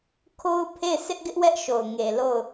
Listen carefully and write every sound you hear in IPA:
kʰo˦ʊ̯ pʰe˦˨ɪ̯sʰɪ˦ʔɡɪ˦ʔ wɛ˦ʔʃo˨ʊ̯ŋe˨ lo˦˨ʊ̯

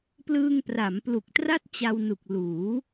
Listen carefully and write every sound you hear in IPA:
plɯː˧ŋpra˩˦mplu˨˩k̚ tra˥˩t̚ t͡ɕa˧wnu˨˩k̚ luː˩˦

